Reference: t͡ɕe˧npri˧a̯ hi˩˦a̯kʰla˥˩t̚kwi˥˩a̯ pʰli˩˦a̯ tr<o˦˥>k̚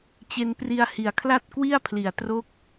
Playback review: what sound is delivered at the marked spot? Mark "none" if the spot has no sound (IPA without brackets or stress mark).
o˦˥